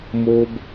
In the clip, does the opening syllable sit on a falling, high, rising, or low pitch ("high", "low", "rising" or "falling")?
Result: high